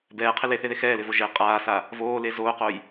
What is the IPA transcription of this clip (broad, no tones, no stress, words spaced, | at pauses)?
bɛːqʰɪ leθeðe xɛːlɪvo ʒe qʼaːsa | voːle zoːqoj